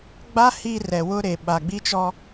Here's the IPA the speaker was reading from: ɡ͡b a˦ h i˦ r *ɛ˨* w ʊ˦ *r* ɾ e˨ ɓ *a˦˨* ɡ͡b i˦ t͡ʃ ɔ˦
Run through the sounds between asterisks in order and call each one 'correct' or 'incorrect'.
correct, incorrect, incorrect

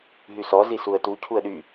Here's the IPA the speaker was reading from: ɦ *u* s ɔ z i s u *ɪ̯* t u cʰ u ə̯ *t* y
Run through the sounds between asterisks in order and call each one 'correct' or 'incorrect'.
incorrect, incorrect, incorrect

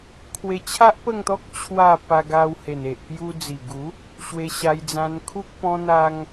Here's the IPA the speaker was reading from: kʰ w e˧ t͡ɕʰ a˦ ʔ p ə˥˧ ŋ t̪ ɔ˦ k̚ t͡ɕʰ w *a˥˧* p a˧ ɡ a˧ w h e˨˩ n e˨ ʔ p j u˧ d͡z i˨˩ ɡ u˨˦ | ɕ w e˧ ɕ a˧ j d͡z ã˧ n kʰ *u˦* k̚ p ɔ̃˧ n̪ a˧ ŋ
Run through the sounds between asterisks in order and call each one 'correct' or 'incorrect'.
correct, correct

